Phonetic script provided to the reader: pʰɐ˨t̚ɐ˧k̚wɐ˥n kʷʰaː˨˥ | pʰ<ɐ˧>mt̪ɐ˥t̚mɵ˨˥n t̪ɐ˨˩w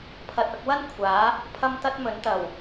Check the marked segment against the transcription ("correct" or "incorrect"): incorrect